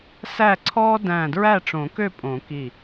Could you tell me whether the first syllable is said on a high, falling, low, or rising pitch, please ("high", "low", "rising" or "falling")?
falling